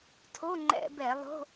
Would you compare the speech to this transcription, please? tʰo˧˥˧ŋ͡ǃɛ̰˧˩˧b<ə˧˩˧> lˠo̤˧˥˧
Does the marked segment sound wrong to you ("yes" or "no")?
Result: yes